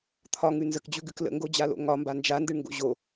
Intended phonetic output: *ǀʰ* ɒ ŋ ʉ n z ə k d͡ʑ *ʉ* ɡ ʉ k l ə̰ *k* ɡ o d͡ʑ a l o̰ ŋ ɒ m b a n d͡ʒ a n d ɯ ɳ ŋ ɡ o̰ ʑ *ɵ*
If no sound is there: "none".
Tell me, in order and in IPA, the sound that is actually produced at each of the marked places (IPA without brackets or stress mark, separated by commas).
t̪ʰ, ʉ, ŋ, o